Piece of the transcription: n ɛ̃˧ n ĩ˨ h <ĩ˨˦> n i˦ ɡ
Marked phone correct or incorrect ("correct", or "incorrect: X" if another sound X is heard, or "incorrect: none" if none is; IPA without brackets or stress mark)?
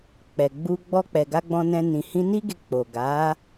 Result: incorrect: ĩ˧